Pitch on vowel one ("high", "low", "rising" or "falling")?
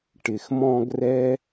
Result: low